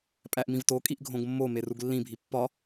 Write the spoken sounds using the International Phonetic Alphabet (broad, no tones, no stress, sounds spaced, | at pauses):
pʼ æ ʔ m ĩ v t o kʼ i ʔ ɡʱ õ ɡ mː o m e r u ɡ lː ĩ bʱ i pː ɒ